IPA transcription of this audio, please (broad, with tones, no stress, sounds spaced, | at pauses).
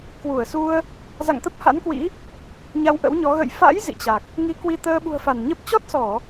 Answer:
k w u˧˩ ə̯ s u˧ ə̯ | z a̰˧˨ ŋ t̪ ə˦˥ p̚ h a̰˧˥ n k w ḭ˧˥ | ɲ a˧ w ʔ ə̰˧˥ w ɲ ɔ˨˦ ɣ ə̰˧˨ j f a̰˧˥ j z ḭ˧˨ t͡ɕ a˨˩ k̚ | ŋ i˨˦ k w i˧ t̪ əː˧ ɓ ṳ˨˩ ə̯ f a˧˩ n ɲ ə˦˥ p̚ t͡ɕ ɔ˦˥ t̚ s ɔ˧˩˨